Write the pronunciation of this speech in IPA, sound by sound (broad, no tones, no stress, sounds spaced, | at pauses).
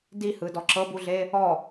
d i h ɯ d ɔ ǁ ɤ b u ɮ e | ɔ